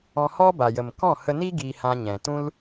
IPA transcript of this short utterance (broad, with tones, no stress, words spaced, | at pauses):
ɔ̃˧hɔ˦ ba˨jə˨m kɔ̃˦˨hə˧ni˦ ɡi˧hã˧ɲɛ̃˨ tũ˦l